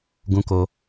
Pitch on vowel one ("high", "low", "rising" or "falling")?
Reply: high